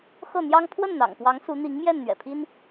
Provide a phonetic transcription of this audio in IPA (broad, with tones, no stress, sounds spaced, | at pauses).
x ɤ˥˩ n̪ j ɑ˥ ŋ pʰ w ə˥˩ n n̪ ɑ̰˨˩ ŋ p w ɑ˧˥ ŋ s u˧˥ n̪ i˧˥ ŋ m j ɛ˥˩ n n̪ ɥ ɛ̰˨˩ pʰ i˥ n